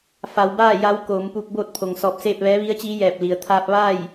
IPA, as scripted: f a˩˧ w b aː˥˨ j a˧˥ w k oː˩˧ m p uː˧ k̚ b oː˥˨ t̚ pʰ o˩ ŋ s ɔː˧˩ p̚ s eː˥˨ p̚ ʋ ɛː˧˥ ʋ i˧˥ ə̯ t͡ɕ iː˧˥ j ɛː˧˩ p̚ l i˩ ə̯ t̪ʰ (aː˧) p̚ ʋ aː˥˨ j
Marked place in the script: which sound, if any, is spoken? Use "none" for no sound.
aː˧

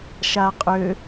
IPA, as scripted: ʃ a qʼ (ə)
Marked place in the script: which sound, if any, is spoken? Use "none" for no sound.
ø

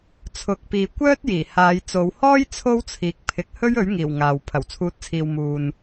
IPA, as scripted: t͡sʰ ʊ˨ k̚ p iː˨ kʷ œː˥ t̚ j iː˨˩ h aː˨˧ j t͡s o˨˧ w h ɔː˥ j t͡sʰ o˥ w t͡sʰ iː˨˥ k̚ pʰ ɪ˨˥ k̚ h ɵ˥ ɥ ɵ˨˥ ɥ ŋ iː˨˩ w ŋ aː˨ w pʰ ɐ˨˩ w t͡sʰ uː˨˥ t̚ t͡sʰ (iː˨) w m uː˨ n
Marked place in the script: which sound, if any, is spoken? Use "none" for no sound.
iː˨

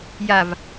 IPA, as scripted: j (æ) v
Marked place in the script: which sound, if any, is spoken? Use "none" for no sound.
a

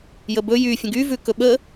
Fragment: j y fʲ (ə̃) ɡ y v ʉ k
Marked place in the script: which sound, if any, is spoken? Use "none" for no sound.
ə̃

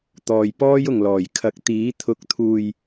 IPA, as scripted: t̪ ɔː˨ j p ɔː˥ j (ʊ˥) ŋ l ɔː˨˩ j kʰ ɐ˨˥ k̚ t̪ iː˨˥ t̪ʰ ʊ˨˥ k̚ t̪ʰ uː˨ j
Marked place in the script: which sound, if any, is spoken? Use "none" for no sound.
ʊ˨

